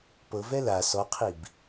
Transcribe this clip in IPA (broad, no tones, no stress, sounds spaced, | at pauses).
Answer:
p ɤ v ɛ l a s ɔ qʰ i b